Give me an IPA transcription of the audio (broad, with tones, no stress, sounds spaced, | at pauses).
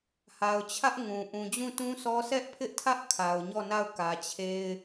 h a˨ ʊ̯ t͡ɕʰ ä˦ ʔ ŋ ũ˨ ʔ ũ˨ d͡ʑ ũ˦˨ t ũ˦ sʰ ɔ˦ s ɛ˦ ʔ pʰ ɪ˦ ʔ tʰ ä˦ ʔ kʰ a˨ ʊ̯ ɲ ɔ˦˨ n a˦˨ ʊ̯ k ä˨ t͡ɕʰ e˦ ɪ̯